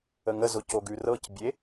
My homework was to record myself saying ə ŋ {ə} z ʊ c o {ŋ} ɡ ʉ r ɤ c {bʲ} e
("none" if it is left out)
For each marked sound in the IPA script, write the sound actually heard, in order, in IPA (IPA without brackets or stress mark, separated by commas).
ə, none, bʲ